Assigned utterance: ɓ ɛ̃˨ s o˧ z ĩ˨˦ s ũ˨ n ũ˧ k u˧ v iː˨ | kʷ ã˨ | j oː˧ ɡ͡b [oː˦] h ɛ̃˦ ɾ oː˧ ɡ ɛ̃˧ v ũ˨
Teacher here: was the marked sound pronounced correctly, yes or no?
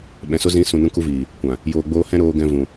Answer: yes